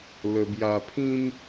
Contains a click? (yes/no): no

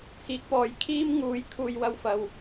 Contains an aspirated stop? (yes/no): yes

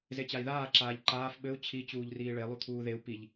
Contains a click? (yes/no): yes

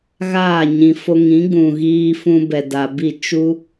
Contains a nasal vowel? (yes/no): yes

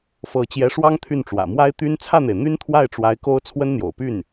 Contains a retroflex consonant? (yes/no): yes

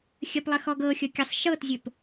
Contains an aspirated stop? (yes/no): no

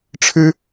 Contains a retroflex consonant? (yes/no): yes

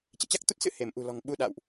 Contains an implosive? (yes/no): yes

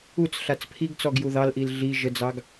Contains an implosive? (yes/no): no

